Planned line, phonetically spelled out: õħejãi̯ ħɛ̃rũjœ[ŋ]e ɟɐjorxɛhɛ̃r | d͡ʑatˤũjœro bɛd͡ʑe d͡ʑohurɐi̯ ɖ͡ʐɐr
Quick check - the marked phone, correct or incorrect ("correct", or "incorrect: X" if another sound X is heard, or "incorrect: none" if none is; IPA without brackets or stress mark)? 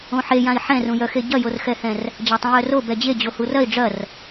incorrect: x